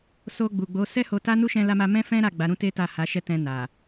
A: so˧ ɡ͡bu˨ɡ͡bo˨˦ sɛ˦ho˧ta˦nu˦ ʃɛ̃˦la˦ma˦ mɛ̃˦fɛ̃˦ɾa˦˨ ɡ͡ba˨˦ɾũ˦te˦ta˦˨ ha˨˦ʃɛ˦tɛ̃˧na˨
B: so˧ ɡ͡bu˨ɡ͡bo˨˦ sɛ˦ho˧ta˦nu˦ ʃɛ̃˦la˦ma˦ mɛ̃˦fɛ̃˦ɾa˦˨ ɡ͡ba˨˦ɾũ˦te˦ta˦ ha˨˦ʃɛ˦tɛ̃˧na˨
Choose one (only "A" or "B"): A